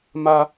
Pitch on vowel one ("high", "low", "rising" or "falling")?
high